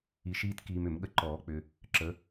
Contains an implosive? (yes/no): yes